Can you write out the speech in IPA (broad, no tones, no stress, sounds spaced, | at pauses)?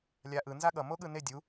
lʲ a ʔ ɯ n z a ɠ ʌ m o ɠ ɯ n e dʲ u